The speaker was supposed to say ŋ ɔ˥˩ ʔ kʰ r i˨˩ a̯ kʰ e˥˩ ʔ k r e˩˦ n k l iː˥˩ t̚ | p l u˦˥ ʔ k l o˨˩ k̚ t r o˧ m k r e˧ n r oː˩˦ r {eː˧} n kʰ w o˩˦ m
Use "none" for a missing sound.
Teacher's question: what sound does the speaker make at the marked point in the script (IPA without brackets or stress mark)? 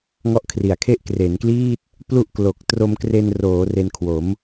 e˧